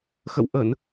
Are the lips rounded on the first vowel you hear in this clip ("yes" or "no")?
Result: no